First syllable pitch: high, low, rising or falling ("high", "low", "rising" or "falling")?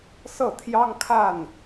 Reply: falling